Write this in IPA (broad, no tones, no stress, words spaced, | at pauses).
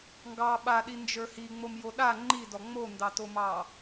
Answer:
ŋɡɑ ɓaɗind͡ʒə˞ hiŋ͡momjo ɗa ŋ͡ǃidɔ ŋ͡mondɑtomɑ